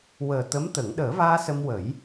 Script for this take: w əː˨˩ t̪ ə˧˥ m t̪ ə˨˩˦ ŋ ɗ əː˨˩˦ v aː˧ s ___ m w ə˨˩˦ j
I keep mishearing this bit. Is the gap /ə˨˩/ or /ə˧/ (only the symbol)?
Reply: ə˧